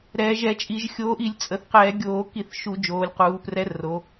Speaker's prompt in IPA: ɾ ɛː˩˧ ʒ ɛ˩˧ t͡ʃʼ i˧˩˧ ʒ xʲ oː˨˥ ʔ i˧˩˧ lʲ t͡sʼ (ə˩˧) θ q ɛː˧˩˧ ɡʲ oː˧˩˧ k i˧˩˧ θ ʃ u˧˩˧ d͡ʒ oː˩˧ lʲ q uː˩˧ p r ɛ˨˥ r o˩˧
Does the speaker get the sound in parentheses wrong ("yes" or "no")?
no